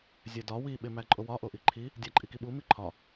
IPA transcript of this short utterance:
zʲ æ d ɒ w i ɓ e m æ ǃʼ o w ɒ ʔ o ʔ i ǃʰ i | dʲ æ ǃʼ i k i ɓ u m i ǃʰ ɒ

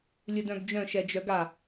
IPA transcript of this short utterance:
lʲ ɨ d œ̃ ɡ d͡ʒ œ̃ ʃ ɛ d͡ʒ œ ɡ a

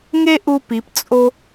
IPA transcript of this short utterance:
ŋ e˥ ʔ u˧ p i˩˧ p t͡sʼ o˥

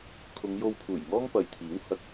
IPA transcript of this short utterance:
kʰ ʊ˨˧ ŋ j o˧ w pʰ uː˨˩ j ŋ ɔː˥ ŋ p ɐ˨ j t̪ʰ iː˨˥ w h ɐ˧ k̚

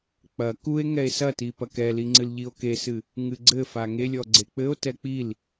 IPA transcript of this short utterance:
k͡p ɐ k u e̯ ŋ ɛ e̯ s ɐ t i p ɐ k ɛ l i ŋ͡ǀ ɨ l ʎ i o̯ k e s ɨ | ŋ ɨ ɡ͡ǀ ɘ f a ŋ e lʲ ɔ ɡ͡ǀ e k͡p ɘ o̯ t ɛ k͡p i l

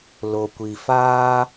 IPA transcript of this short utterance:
l o˨ kʷ i˨ f aː˦

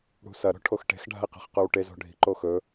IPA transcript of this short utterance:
ɽ ṳ s ɐ ɾ o̤ ʈʰ o x ʈ e̤ x ɖʱ a̤ i̯ q e̤ χ q ʉ w ʈ e z o̤ ɖʱ i̤ ǃ o x ɵ

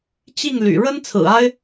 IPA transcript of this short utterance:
t͡ɕ i˥˩ ŋ l y̰˨˩ ɻ ə˥ n t͡sʰ ɹ̩˨˩ a˥ ɪ̯

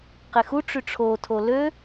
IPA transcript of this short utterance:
q e x u ʈ͡ʂ y ʈ͡ʂʰ o tʰ o l ø

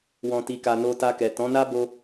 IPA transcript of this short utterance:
w ɔ̃˨ t i˨ k a˨ n o˧ t a˧ k ɛ˨ t ɔ̃˨˦ n a˦ b o˧

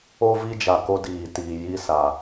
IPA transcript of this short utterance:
o˦ v i˦ d͡ʒ a˨ k o˦ d iː˨ t iː˨ j i˦ s a˨

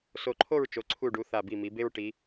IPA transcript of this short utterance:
s o˧˩ ǃʰ o˥˧ ɹ t͡ʃ o˩˧ ǀʰ u˧˩ ɖ u˩˧ θ a˧˩ b i˧˩ m i˩˧ b e˥ ɹ ʈ i˩˧

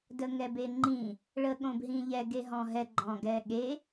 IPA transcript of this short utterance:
d ə ŋ ɛ b e ŋ͡ǃ ĩ | ɭ ə ɠ õ b ɦ ĩ ʎ ɛ ɡ e ɦ ɔ̃ ɦ ɛ ɡ͡ǃ ɔ̃ ɡ ɛ ɠ e

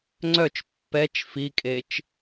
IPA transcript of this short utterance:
ŋ͡ǀ œ t͡ʃ pː ɛ t͡ʃ f i kʼ e t͡ʃ

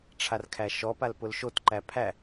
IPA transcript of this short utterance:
ʈ͡ʂʰ a r kʰ æ ʃ ɔ p a l p ʊ l ʃ o t ǃ æ pʰ æ

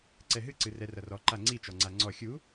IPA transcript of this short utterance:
ǀ ɛ ɦ ɨ ǀ ɨ r ɛ r ɐ r ɔ ǃ a ŋ͡ǀ i t͡ʃ ɔ ŋ͡ǀ a ŋ͡ǀ ɔ xʲ u

